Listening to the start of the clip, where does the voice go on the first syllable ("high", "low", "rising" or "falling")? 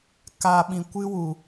low